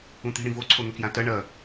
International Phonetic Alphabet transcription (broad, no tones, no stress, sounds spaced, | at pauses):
ũ t̪ i̤ ɽ ĩ v o ǀʰ o n̪ ɵ k j ã t ɐ ɳ ɐ